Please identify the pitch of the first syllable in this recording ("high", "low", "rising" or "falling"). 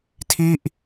falling